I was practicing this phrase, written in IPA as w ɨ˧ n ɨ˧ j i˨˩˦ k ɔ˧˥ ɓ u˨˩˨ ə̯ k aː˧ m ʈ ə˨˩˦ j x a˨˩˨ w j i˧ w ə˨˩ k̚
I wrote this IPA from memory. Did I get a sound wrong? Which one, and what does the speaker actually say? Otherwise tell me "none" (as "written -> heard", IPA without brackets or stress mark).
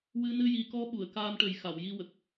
none